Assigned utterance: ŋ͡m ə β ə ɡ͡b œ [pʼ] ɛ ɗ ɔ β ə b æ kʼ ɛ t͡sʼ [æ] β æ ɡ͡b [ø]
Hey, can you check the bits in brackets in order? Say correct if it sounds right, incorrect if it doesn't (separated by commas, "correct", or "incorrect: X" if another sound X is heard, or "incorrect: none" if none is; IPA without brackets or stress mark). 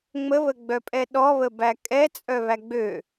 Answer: correct, incorrect: œ, correct